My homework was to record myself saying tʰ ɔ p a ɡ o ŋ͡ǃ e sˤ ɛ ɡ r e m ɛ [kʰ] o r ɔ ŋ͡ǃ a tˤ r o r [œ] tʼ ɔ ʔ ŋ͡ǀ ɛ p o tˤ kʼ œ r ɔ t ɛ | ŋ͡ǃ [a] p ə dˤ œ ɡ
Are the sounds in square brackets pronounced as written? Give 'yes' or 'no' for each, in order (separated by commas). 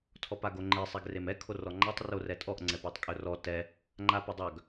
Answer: yes, no, yes